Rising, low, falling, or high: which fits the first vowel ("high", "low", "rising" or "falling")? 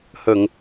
low